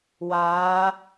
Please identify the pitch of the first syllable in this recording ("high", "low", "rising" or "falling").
rising